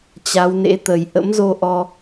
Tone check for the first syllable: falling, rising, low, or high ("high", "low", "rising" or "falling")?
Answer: rising